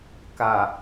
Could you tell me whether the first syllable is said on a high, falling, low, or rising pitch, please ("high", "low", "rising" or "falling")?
low